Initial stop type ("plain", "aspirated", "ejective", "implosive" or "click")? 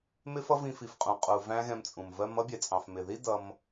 ejective